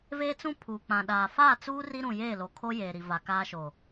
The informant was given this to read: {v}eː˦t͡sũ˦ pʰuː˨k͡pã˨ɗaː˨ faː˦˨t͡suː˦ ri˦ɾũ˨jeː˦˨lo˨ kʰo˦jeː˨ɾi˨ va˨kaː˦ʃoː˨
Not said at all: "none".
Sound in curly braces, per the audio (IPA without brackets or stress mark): v